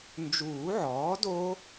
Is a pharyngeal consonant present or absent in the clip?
present